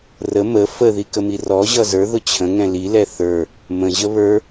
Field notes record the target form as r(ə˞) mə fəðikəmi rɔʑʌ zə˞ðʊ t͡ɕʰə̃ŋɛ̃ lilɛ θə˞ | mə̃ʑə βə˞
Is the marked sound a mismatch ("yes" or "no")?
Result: yes